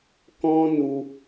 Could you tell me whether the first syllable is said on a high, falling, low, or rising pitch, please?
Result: high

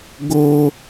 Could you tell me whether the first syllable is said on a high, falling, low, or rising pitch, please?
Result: high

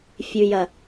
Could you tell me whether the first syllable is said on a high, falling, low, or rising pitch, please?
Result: low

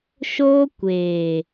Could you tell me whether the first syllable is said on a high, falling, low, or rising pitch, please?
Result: high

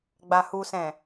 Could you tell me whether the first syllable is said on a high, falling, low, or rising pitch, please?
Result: low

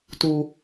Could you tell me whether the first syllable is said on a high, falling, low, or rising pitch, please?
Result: low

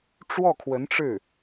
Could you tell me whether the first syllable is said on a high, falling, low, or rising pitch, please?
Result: falling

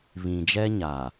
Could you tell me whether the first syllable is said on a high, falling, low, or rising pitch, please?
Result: low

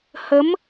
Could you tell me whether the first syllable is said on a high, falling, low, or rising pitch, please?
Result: rising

